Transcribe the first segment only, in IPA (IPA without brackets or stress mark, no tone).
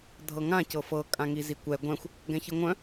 dʱ